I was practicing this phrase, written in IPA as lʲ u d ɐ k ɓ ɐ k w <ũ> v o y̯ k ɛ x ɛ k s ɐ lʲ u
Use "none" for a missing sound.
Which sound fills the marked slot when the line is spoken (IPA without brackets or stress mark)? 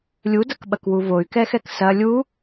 u